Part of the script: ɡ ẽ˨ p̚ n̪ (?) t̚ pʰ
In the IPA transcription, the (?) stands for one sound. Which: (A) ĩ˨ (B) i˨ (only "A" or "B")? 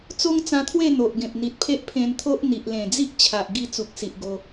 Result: B